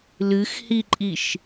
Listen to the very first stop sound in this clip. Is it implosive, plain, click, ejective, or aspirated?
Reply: click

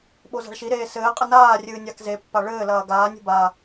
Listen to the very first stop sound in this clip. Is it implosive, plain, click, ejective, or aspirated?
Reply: implosive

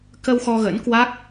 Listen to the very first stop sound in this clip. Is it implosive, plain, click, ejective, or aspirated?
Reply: plain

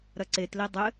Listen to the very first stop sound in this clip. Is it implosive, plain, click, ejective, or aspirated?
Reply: click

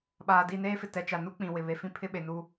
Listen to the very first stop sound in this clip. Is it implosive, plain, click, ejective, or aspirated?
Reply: implosive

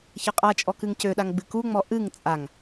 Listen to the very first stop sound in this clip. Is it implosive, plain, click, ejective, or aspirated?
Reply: ejective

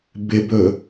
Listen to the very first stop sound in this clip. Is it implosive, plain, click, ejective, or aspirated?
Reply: plain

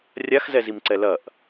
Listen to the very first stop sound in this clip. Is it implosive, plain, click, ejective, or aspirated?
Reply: click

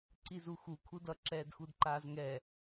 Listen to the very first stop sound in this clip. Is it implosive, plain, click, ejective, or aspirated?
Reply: click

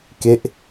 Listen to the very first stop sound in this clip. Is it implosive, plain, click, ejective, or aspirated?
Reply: plain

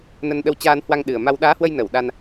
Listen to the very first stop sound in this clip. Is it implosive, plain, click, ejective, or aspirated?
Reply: implosive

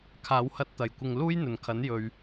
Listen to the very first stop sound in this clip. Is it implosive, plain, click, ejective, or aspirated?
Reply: aspirated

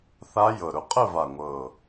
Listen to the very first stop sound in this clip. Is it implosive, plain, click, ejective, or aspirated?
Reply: ejective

